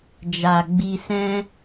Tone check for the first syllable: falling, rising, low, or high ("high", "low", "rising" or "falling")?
low